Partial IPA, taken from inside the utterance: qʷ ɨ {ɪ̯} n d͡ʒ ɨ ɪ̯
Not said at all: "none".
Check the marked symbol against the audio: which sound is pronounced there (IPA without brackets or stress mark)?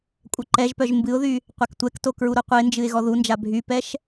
ɪ̯